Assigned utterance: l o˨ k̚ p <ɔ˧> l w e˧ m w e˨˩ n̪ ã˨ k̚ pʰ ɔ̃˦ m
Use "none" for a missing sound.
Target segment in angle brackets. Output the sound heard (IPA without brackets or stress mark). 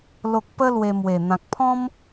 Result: ə˧